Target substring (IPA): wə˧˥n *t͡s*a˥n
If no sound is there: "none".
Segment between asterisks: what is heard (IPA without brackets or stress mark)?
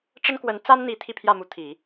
t͡s